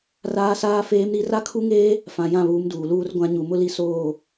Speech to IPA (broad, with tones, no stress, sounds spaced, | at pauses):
r aː˦ s aː˦ f eː˦ m ɾ i˦ r a˦ kʰ u˦ ŋ eː˦ | f ã˨ j ã˦˨ β uː˨˦ m d uː˨ l uː˦ r ɡʷ ã˦ ɲ u˨ m ʊ˦ l i˦ s oː˦˨